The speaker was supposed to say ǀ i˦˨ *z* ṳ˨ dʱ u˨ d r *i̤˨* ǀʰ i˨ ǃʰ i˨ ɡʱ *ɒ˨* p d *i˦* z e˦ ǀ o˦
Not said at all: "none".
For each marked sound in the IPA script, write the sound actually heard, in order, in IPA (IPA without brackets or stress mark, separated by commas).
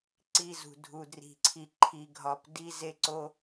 z, i̤˨, ɒ˨, i˦